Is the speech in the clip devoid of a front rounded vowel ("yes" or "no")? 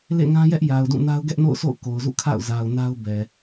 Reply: yes